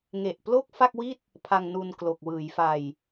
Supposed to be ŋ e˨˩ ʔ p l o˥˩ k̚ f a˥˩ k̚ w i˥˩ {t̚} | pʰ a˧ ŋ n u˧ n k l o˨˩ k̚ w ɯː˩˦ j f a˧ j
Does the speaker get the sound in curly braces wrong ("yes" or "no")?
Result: no